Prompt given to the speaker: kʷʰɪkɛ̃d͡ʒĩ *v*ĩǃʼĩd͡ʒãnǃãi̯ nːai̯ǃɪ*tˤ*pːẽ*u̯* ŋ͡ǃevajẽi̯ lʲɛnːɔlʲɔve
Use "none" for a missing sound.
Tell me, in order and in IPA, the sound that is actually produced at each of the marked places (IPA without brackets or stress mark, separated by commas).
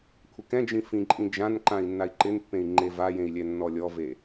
f, n, i̯